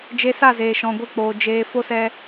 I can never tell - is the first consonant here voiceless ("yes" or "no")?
no